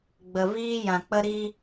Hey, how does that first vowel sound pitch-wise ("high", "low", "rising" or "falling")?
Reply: low